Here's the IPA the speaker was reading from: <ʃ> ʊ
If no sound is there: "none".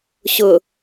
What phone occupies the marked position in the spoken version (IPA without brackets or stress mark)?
ɕ